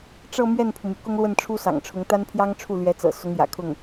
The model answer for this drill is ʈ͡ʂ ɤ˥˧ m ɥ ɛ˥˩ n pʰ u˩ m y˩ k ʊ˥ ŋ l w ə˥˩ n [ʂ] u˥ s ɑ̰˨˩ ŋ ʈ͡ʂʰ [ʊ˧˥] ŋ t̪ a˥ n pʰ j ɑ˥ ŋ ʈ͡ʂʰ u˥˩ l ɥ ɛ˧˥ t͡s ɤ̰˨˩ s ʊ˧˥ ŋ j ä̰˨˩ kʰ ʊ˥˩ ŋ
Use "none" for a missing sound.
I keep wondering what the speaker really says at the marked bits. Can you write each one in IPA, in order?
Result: ʈ͡ʂʰ, ʊ˧˥

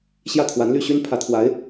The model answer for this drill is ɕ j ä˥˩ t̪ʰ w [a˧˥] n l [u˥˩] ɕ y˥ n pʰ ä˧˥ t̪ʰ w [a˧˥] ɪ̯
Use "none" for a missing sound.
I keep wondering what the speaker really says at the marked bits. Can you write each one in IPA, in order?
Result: a˧˥, y˥˩, a˧˥

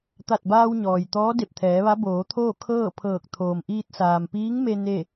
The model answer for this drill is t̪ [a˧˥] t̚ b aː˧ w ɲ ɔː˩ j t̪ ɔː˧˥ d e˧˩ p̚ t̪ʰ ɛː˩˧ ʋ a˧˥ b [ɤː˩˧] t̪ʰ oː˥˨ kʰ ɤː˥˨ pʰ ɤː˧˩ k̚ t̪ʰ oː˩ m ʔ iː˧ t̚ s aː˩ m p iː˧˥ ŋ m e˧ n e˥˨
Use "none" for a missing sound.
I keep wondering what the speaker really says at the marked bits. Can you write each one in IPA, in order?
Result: a˧˩, oː˩˧

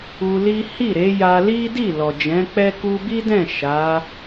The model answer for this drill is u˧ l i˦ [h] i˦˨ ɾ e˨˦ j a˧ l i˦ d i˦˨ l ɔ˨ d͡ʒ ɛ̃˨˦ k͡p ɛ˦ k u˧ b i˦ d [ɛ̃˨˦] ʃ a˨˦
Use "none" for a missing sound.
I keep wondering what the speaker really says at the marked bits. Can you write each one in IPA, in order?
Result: h, ɛ̃˦˨

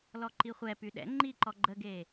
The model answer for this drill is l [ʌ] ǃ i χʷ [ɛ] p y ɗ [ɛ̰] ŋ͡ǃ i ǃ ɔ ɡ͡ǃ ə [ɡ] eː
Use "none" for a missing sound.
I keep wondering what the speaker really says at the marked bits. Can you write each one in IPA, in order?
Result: ɔ, ɛ, ɛ̰, ɡ

